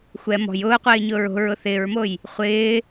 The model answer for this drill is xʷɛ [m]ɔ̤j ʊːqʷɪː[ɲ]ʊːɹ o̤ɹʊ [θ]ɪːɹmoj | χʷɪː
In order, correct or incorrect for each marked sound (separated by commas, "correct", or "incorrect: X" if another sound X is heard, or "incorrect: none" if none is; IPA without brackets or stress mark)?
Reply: correct, correct, correct